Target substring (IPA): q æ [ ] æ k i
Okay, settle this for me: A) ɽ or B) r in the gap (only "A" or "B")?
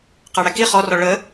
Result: A